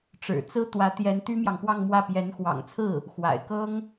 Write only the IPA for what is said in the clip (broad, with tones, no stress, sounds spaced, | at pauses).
ʈ͡ʂ ɻ̩˨˩ t͡s ɹ̩˥ t̪ w ä˧˥ t̪ j ɛ˧˥ n t̪ y˥ m j ɑ˨ ŋ p w ɑ˥˧ ŋ m w ä˥˩ p j ɛ˧˥ n x w ɑ̰˨˩ ŋ t͡sʰ ɹ̩˥˩ | x w a̰˨˩ ɪ̯ k ɤ˥ ŋ